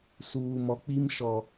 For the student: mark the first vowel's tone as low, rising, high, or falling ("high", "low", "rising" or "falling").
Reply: low